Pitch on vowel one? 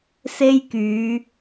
high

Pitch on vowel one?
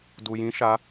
low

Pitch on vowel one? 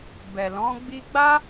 low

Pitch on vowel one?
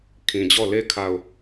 low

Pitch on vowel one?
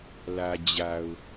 low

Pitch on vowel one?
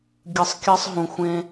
low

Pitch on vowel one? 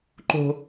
high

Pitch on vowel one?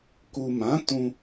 low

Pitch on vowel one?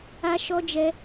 high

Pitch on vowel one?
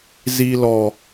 low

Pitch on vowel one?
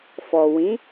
low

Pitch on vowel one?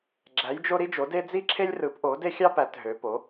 rising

